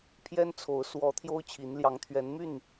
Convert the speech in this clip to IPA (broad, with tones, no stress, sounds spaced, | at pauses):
pʰ j ɛ˦ n t͡sʰ o˨˦ ʊ̯ s w ɔ˨˦ t̪ʰ j o˦ ʊ̯ t͡ɕʰ i˨˦ n l j ɑ˨˦ ŋ t̪ʰ ɥ ɛ˨˦ n m y˥˨ n